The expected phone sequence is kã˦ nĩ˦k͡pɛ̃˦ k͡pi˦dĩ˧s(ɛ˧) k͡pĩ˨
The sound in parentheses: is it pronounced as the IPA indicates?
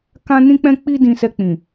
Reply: yes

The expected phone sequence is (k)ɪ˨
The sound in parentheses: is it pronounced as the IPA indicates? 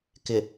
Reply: yes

